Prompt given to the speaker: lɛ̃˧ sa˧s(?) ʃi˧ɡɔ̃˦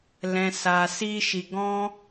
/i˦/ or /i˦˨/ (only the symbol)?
i˦